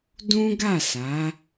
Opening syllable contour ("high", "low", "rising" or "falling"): high